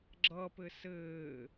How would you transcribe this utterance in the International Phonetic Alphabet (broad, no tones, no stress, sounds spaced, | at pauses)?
ɡ͡ǁ ʌ p ɘ s ɘː